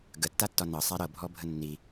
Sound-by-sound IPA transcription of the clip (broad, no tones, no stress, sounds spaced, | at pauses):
ɡ ə tː a tː ɒ n ɤ sˤ a ɾ ɤ bʱ ɔ bʱ ə nː i